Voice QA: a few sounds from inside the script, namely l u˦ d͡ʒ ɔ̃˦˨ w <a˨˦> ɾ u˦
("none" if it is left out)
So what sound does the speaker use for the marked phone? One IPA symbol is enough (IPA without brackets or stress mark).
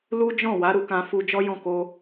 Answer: a˨˦